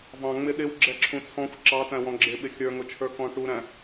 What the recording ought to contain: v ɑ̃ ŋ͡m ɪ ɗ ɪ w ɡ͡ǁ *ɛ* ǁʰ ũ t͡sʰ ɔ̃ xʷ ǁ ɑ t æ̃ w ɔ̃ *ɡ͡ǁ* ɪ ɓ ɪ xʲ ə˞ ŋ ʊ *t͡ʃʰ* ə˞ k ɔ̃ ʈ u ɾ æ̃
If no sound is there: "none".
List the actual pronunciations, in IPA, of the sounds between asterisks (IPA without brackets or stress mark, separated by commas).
ɛ, ɡ͡ǁ, t͡ʃʰ